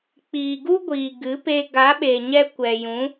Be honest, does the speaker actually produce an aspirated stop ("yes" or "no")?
no